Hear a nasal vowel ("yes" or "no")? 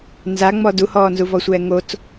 no